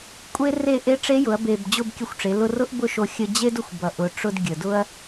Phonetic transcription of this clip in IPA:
kʷʼe˥re˥˧ ʔe˧˥ʈ͡ʂe˧˥jʊ˩˧ɐ̯ be˨˩b d͡ʑʊ˥˧bkʲə˧xʷʈ͡ʂe˩˧ lʊ˧rʊ˥ʔbʊ˥˧ʃo˧ xʲə˧ d͡ʑe˥dʊ˧xʷbʌ˨˩ ʔʊ˨˩ʈ͡ʂʊ˧d ɡʲə˨˩dʊ˥ɐ̯

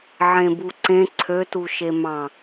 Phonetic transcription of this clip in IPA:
ʕẽbuǀẽ ǀʰøtu ʃemɑ̃

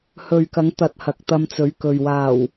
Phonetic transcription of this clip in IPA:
hɵ˨ɥkɐ˨˥ŋ t̪ɐ˨t̚ hɐ˨k̚t̪ɐ˧mt͡sɵ˨˥ɥkɵ˨ɥ waː˨˩w

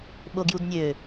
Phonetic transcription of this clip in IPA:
ɓoɡjudnʲø

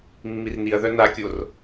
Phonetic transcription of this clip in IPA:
mːirniɐ̯ðœ nakʲor

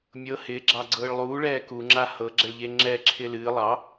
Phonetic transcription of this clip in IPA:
mʲɤ hɪːɡ͡ǁɑɡ͡ǀɤːɭ lˠuːɭɛː kuŋ͡ǁa hɤɡ͡ǁɛɭʎe ŋ͡ǁɛǁʰɪː lɨː lˠɑ

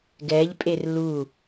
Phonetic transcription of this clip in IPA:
ɡɛʎpʼer lu

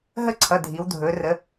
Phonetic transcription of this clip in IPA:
ɦə˦˨ǀʰʌ˩˧˩ dʱi˩˧wdʱɵː˩˧ rə˩˧

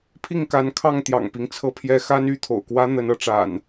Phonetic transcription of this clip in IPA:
pʰi˥˨ŋka˨˦nkʰɑ˥˨ŋ t̪jɑ̰˨˩ŋpi˦ŋ t͡sʰɤ˦pʰjɛ˦ xa˦ny˥˨t̪ʰo̰˨˩ʊ̯kwä˦ n̪ə˨˦nɤ˨˦ʈ͡ʂa̰˨˩n

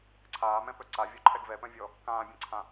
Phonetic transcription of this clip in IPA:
ǀʰaːmɛ̃pœ ǀavʲɔǃʰɛɡ vɛpœ̃vʲɔ | kãːbʲɛ̃ǀʰã

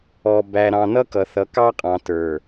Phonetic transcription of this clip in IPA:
ɔ˨ bæ˨ ɾɑ̃˨nʌ˦kʌ˨θʌ˨ kɑ˦qʼɑ̃˨tə˞˨

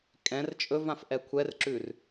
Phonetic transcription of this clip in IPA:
kʼɛ̃r t͡ʃʼɵvãf ʔɛkʷʰɛrǁʉr

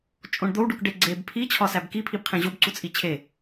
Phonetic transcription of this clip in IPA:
t͡ʃʼõɳd̪ow ɖukɖeɡ͡ǀeb pʰi t͡ɕʰɒsæbki pʰibqʰẽʑob ǀut͡sʼit͡ɕʰe

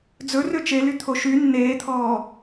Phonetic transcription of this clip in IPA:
d͡zɵ røt͡ʃely t̪ʰoʃy nːeːt̪ʰɔː

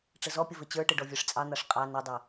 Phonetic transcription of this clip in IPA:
ʈ͡ʂəzɔpʲə vɘt͡ɕə˞ʈɘ ɖɔvʲə˞ʂt͡sʼɑn̪ɑʂ qʼɑ nɘdˤɘ

